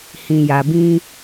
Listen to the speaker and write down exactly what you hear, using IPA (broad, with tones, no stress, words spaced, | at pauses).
hĩ˧ja˧bĩ˦